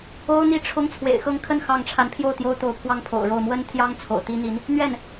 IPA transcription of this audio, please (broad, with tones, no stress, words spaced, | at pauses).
o˥ʊ̯ n̪i˥˩ʈ͡ʂʰʊ˥ŋ t͡sʰwḛ˨˩ɪ̯xɤ˥˧ŋkʰə˥˧n xɑ˥˩ŋ ʈ͡ʂʰa˧˥npʰjo˥˩ʊ̯ t̪jo˥ʊ̯ t̪o˧˥ʊ̯pʰwɑ˥˩ŋpʰo̰˨˩ʊ̯ɻo˥˩ʊ̯ mwə˥n t̪ʰjɑ˥ŋ t͡sʰo̰˨˩ʊ̯t̪i˥n̪i˧˥n | n̪ɥɛ˥˩n